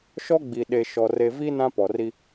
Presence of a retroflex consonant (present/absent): absent